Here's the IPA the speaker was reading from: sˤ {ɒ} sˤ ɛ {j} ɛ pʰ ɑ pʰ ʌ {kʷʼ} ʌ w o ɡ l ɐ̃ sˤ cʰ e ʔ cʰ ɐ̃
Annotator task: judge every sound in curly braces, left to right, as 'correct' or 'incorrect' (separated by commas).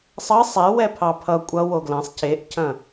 incorrect, incorrect, correct